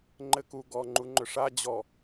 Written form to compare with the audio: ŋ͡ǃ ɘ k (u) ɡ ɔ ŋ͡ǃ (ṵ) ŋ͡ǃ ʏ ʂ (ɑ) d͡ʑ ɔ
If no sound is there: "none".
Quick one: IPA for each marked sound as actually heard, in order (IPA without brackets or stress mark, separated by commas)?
u, u, a